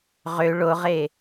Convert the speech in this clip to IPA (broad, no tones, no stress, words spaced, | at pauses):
ʁø ɭoʁe